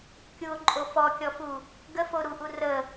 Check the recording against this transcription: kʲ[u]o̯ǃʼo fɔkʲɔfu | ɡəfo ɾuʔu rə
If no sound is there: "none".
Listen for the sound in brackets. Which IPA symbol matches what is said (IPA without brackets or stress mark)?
u